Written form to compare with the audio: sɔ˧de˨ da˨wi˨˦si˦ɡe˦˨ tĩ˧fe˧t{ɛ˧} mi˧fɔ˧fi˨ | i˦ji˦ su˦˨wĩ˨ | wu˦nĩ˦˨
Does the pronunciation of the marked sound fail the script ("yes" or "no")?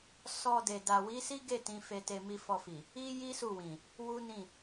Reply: yes